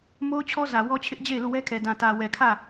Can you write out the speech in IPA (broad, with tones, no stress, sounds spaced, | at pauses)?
m o˦ ʊ̯ t͡ɕʰ ɔ˦ z ä˨ w ɔ˦ t͡ɕʰ ɪ˦ ʔ d͡ʑ e˦˨ ɪ̯ l u˦˨ w ɛ˦ kʰ ɛ˨ d ã˨ t ä˨ w ɛ˨ kʰ ä˦˨